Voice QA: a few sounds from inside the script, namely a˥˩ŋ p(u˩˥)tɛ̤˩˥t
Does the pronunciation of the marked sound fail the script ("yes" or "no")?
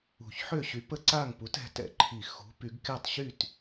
no